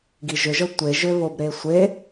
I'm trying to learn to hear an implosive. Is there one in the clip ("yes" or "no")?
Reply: no